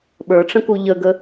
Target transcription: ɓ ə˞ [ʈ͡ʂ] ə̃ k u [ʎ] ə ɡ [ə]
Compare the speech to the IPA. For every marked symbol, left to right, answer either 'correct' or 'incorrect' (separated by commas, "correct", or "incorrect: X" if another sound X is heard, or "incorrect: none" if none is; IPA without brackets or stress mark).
correct, correct, correct